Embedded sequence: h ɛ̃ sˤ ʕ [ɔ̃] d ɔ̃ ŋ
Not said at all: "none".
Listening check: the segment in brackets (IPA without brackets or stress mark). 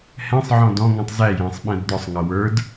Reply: ɔ̃